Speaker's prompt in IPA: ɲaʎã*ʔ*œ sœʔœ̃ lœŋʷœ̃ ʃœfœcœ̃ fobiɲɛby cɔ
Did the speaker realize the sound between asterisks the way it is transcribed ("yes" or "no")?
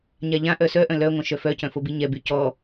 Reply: yes